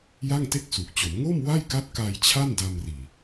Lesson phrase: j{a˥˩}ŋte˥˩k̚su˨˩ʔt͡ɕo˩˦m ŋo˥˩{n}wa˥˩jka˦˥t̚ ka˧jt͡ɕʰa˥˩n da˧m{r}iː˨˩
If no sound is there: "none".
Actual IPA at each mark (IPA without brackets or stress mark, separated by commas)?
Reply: a˥˩, m, r